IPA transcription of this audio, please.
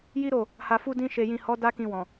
ji˦ɾo˦˨ | ha˨fu˧ dĩ˧ʃe˨jĩ˨ hɔ˨˦ da˦kĩ˧wɔ̃˨

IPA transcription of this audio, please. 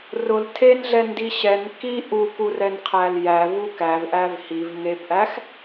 rʊl tʰenɮɛndi ɕɛn ki ʔukurɛnqʰæl jævu kævʔæv hivŋebʔæx

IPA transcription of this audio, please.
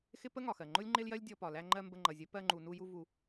xɪ˦pə˦ ŋɒ˨xɜ˨ŋ͡ǃʊ˦lʲ ŋ͡ǃɪ˦ljɜ˦lʲ dʲɔ˧pɒ˨ læ˧ŋ͡ǃɜ˧ mbə˧ŋ͡ǃʌ˨zʲə˨˦ pɜ˧ŋ͡ǃu˨nu˧ju˧ vu˧

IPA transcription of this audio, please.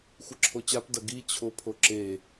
xʷɨǁʰot͡ɕap dɐɡi t͡ɕʰopʰoǁe

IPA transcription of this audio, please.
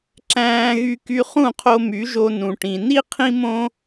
ǁæ̃ː˧ɣy˧ky˧ χũ˦˨qʰo˧my˨˦ʒo˧ nũ˨ʈĩ˨ni˦ qʰĩ˦mõ˦

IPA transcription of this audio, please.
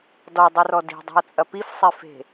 dɔdˤɨrɔ di̤dˤe̤o̯t͡sʼɐ pifsˤefe̤

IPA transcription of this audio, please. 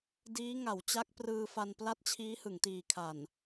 diː˦˥ŋa˩˦w t͡ɕa˦˥k̚prɯː˧ fa˧npla˥˩t̚ t͡ɕʰiː˦˥hɯ˩˦ŋ tiː˨˩kʰa˨˩n

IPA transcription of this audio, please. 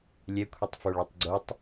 lʲɛkʷʰitˤ foɭotˤɡ͡ǀotˤ

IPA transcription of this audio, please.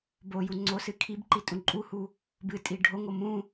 boju ŋ͡ǀosɨ kʰibǃi tʼũǃʼuhu | bɨtʼi ɖʱoŋo mũ

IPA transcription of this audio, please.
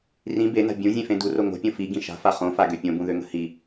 rĩ bena̤ bʲũzʲẽfẽ duro ŋo̤pʲõ fiɡĩ ʃa̤fa χõfaɡø pʲõbũðøŋə̤ hi

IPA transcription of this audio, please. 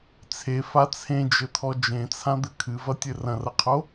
t͡sʰefa t͡sʰẽd͡ʒɘt̪ʰɔ d͡ʒẽt͡sʰãd̪ɘ kʰɨvɐtʲɘ rɐ̃rɐqʰo

